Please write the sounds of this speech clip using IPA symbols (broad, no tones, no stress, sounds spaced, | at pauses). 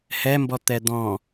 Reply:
h ɛ m b ɔ t̪ ɛ d̪ ɔ̃